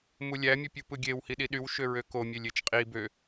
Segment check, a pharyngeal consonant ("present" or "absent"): absent